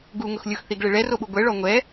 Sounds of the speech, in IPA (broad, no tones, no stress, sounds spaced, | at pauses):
ɡ u ŋ ʊ x lʲ ʊ x θ i ɡ ɭ e ɭ ɛ r o ɓ u ɡʷ ɛ ɭ ɔ ŋʷ ɛ